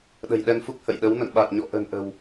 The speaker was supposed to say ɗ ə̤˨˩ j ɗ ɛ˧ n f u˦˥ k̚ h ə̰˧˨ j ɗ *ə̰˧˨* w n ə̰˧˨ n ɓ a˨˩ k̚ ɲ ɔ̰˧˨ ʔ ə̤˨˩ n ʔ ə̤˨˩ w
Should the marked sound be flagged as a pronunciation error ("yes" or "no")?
yes